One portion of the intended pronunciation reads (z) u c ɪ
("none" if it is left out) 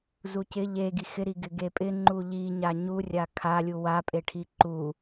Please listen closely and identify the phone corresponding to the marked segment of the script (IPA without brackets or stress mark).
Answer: z